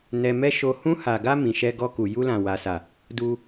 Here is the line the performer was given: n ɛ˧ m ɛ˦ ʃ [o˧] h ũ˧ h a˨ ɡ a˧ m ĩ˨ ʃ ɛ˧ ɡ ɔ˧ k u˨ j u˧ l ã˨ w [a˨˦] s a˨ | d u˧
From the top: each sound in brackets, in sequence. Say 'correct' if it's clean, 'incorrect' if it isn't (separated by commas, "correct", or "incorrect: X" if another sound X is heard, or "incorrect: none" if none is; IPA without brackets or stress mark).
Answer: correct, incorrect: a˨